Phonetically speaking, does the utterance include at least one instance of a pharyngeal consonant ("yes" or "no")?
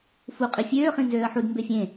yes